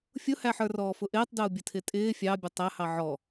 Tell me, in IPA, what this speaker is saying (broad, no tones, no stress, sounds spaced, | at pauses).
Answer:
fʲ ʊ h æ ħ ə˞ r ɔː f ʊ ʔ ɪː tˤ d ʊː bʲ ə tʰ ɪ tʼ ɪː fʲ ɑ bʲ ʊ tˤ æ h ɑ ʕ ɔ